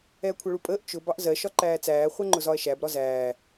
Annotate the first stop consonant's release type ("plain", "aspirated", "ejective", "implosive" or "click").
aspirated